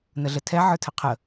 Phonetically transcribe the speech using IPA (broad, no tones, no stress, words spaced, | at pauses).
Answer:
nəɮətʰɛ ʕə˞tʰəqʰə